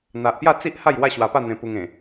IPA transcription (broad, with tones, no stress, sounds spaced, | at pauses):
n̪ a˨ ʔ p j a˥˧ t͡s i˦ ʔ h a˥˧ j w a˥˧ ɕ w a˧ p a˥˧ n̪ ẽ˧ p u˧ ŋ ẽ˨˩